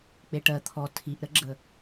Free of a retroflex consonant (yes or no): no